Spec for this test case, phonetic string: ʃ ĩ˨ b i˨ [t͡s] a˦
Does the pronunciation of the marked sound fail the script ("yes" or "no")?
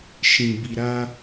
yes